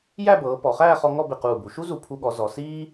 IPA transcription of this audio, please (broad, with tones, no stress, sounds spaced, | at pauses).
j æ˥˧ b ɤː˩˧ p ɔ˩˧ χ æː˥˧ χ ɔ˧ ŋ ɔ˥˧ b ɪ˧˩ q uː˧˩ b u˩˧ ʃ u˥ z u˧˩ pʰ u˧ ɠ ɔ˩˧ z ɔ˩˧ s iː˥